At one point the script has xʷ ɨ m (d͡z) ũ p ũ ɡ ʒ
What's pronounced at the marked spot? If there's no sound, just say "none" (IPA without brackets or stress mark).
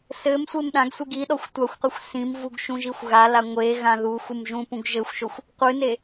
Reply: ʒ